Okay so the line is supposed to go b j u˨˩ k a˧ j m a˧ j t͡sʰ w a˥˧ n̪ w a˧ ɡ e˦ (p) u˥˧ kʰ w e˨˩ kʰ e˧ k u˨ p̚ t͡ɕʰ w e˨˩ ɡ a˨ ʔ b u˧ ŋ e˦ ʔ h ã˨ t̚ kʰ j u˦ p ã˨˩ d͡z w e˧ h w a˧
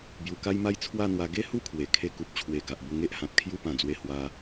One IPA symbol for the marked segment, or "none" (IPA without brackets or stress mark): h